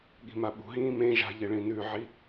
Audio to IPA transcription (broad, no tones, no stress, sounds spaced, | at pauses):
ɠ i̤ m a ɓ ṳ ɦ ĩː m ẽ ʒ a̤ ʎ e ɭ ĩ n ʉ ʕ i